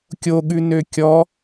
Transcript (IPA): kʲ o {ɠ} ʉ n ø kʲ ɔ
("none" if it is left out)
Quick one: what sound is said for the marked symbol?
ɠ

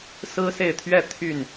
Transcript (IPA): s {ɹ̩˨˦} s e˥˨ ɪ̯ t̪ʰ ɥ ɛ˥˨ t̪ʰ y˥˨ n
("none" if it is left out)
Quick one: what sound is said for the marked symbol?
ɹ̩˦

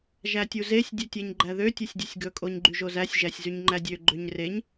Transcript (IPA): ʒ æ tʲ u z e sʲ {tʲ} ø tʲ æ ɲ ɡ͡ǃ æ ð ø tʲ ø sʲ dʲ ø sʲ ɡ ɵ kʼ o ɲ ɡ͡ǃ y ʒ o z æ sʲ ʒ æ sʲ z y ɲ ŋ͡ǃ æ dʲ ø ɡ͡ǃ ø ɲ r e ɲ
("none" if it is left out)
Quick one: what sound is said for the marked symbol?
dʲ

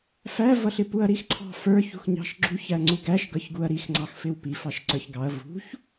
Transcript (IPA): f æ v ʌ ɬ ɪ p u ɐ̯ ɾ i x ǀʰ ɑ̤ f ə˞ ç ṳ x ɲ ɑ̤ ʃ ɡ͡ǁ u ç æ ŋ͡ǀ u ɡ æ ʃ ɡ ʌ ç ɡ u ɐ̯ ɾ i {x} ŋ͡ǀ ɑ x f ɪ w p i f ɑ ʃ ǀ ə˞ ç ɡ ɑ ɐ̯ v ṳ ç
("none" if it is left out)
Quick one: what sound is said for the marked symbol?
x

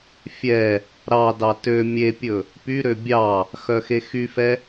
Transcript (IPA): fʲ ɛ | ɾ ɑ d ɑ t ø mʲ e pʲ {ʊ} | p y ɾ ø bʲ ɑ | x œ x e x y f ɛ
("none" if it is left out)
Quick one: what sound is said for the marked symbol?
ɵ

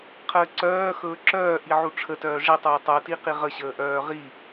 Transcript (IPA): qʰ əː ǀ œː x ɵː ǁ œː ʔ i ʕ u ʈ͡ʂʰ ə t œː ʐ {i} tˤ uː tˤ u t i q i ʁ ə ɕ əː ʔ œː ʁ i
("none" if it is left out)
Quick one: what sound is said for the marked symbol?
i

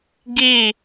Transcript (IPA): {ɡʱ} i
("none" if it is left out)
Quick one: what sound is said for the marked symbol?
ɡ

